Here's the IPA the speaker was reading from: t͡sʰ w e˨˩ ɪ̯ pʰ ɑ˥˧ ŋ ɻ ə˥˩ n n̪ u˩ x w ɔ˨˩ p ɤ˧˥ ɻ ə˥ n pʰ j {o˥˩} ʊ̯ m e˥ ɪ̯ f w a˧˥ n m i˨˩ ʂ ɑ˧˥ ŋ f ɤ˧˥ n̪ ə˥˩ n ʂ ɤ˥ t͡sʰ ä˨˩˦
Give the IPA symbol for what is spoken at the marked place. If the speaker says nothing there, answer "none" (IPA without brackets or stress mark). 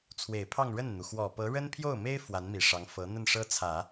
o˥˩